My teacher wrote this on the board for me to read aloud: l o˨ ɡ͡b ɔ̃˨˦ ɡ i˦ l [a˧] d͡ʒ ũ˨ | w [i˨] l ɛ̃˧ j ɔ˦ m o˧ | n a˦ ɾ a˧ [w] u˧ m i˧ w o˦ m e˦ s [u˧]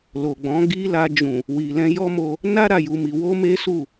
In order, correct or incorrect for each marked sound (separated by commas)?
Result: correct, correct, incorrect, incorrect